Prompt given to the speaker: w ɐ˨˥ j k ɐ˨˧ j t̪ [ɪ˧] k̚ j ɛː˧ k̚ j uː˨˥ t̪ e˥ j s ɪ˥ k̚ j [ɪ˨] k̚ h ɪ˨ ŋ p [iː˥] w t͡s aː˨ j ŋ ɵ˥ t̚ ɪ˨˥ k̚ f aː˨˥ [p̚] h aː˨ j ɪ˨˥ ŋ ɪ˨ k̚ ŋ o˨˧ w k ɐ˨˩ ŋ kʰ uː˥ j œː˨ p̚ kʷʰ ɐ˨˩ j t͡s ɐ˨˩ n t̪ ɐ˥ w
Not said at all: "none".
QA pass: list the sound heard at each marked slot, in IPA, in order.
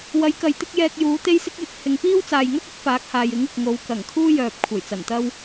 ɪ˥, ɪ˨, iː˥, k̚

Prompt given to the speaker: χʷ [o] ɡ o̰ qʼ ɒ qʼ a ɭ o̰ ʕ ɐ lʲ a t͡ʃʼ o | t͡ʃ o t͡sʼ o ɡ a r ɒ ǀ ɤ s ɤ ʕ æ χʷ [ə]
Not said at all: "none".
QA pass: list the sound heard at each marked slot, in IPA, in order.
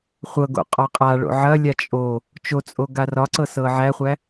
ɤ, æ

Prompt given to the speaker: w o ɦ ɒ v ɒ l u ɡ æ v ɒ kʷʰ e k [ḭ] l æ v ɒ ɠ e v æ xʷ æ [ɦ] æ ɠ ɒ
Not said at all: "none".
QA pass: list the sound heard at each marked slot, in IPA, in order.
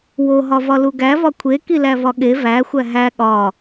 i, ɦ

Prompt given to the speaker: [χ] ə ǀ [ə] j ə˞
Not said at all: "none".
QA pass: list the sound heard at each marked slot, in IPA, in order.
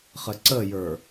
χ, ə

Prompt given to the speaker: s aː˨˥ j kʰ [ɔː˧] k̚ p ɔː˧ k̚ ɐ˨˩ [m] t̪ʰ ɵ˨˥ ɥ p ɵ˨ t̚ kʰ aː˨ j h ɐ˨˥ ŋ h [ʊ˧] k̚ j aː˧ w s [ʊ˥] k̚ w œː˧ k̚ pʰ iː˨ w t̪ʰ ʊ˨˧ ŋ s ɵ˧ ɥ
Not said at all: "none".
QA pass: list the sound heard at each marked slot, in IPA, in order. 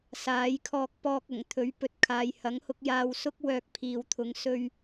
ɔː˧, ŋ, ʊ˧, ʊ˥

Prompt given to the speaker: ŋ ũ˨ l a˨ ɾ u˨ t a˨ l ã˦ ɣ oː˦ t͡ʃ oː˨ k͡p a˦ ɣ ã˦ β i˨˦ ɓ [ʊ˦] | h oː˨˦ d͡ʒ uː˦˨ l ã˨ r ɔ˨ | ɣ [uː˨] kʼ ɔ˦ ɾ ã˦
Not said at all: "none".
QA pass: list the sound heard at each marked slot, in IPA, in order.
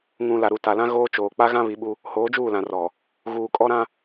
u˦, uː˨

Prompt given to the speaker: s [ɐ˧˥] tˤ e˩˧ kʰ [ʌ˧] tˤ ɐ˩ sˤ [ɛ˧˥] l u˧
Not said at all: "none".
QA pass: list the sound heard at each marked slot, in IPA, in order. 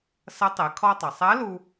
ɐ˧˥, ɔ˧, ɛ˧˥

